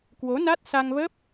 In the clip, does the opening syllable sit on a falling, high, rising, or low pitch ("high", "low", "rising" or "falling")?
rising